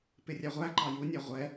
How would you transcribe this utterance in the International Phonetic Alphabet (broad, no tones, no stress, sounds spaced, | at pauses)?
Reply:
p ɪ rʲ æ ʁʷ æ ǃ ɑ j u nʲ æ ʁʷ ɛ